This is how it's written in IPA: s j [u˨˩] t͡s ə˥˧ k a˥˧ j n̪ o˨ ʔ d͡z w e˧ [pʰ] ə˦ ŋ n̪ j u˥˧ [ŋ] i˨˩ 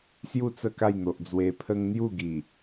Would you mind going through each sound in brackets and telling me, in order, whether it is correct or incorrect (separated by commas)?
incorrect, correct, incorrect